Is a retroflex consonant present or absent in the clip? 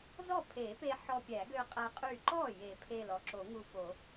absent